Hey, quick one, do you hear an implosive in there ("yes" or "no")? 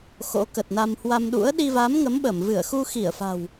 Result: yes